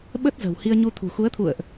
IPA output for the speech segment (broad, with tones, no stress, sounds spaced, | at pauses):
ɓ ə˦˥ t̚ z ə̤˨˩ w h i˧ ə̯ ɲ u˧ t̪ʰ ṳ˨˩ x u˨˦ ə̯ t̪ʰ ṵ˧˨ ə̯ ʔ